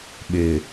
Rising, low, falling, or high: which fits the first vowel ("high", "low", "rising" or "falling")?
low